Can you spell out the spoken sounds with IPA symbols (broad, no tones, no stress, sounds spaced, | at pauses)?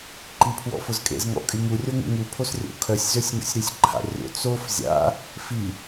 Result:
ǃ i pʰ w ɔ̰ f ʊ z kʼ ḛ z ŋ ɔ̰ kʼ y ŋ u rʲ o ŋ ṵ ŋ u pʰ o s rʲ o̰ kʰ œ sʲ z ø sʲ ŋ ṵ sʲ ɾ y sʲ ǃʰ a̰ rʲ o̰ t͡s o f zʲ a̰ | f i